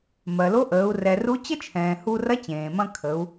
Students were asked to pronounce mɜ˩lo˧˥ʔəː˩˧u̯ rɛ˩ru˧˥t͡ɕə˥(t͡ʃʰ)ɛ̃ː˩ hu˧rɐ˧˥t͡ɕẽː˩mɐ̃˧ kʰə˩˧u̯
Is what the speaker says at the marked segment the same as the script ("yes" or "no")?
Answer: yes